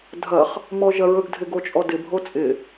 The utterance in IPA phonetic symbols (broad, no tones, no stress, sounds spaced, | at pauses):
dʱ ɐ χ | m ɔ ʒ ɐ ɹ ɵ ɡ dʱ ɪ ɡ o t͡ʃʼ ɔ d ɪ bʱ o t͡sʼ ɪ